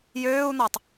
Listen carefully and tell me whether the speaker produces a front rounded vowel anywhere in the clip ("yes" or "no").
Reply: yes